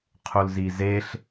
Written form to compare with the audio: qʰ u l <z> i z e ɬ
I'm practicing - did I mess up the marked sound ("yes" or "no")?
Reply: no